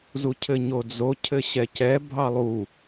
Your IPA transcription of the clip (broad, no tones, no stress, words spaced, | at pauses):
zucʰɘɲod͡zo cʰɘɕɛcɛ bʱɑlˠu